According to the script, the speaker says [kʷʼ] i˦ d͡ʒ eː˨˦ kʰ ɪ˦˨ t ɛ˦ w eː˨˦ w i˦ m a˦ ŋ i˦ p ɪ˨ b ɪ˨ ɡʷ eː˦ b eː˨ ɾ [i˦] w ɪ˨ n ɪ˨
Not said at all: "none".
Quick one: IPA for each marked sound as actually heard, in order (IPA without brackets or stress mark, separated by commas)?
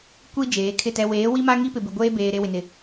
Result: kʷ, e˦